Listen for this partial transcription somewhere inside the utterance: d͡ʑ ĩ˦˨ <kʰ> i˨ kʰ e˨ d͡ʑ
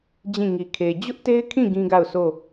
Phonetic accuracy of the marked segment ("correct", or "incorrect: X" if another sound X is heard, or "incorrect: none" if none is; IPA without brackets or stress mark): incorrect: ŋ